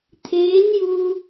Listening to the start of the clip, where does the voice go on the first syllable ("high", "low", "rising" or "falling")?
rising